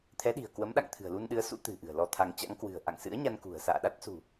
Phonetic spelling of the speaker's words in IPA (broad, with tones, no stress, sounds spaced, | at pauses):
t̪ʰ ɛ˨˦ ɗ i̤˨˩ ə̯ k w ə˨˦ m ɗ a̰˧˨ ŋ t̪ʰ ɨ̤˨˩ ə̯ l u˧ n ɗ ɨ˨˦ ə̯ s ṵ˧˥ t̪ ɨ̤˨˩ ʔ ɨ̤˨˩ ə̯ l ɔ˧ t̪ʰ a˧ ŋ t͡ɕ a̰˧˥ ŋ k w ɨ̤˨˩ ə̯ ʔ a̰˧˨ ŋ s ɨ̰˧˥ ə̯ ɲ a˧ n k ṳ˨˩ ə̯ s a̰ː˧˨ ɗ a˦˥ t̚ s ṳ˨˩